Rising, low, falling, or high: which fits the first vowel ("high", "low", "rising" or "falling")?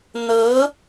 rising